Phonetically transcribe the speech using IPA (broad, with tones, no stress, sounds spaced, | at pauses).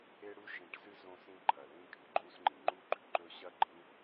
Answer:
e˦ ɽ u˦ ʃ ĩ˨ ʈ s ɨ˦ z õ˦ s ĩ˦ ǃʰ ɐ˩ l ĩ˦ kʼ ɨ˩ ǃʼ u˦ s ŋ͡ǃ ĩ˩ ŋ͡ǃ u˥ ɡ͡ǃ ʉ˩ ǃ ɵ˦ ɕ ɐ˥ ɡ͡ǃ ĩ˥